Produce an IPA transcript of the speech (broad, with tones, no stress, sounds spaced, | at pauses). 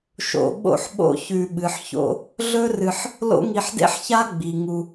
ʃ o̰˨ ɓ o̰˦ ħ ɓ o̰˦ ç ʉ˨ ɓ ɨ˩ ħ ç o̰˥ | ɮ ɵ˥ r ɨ˨ ħ | l o̰˦ ŋ i˨ ħ d ḛ˥ ħ ç a˥ ɡ͡b i˩ ŋ u˨